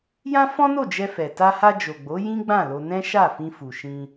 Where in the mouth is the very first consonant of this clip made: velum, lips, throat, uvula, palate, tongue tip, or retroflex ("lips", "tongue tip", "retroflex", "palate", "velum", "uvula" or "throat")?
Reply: palate